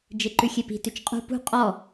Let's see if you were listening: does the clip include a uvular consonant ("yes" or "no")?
yes